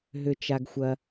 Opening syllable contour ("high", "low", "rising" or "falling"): high